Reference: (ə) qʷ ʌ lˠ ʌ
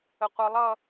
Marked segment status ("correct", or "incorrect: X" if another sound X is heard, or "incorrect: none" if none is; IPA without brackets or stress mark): correct